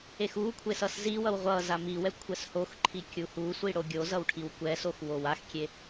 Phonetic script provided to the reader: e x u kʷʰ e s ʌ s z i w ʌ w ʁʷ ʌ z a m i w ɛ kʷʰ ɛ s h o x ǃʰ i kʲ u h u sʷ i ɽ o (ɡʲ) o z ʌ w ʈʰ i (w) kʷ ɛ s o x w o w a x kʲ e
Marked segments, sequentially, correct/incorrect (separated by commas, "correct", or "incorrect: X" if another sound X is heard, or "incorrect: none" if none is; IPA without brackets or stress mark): correct, correct